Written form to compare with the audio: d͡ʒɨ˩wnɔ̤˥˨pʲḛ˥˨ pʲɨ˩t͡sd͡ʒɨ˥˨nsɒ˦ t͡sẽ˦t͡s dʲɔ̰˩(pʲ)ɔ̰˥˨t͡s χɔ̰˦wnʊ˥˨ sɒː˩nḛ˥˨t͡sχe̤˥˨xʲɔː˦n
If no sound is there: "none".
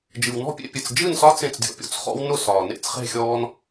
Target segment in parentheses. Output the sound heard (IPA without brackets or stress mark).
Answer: pʲ